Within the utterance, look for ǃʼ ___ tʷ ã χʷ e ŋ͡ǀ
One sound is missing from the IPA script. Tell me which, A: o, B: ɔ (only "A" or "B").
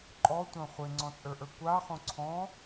B